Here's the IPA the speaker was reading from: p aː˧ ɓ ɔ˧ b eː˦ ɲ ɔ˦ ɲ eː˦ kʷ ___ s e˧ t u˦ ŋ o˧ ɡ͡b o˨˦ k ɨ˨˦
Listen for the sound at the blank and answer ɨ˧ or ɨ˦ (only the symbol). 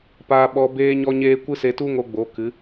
ɨ˦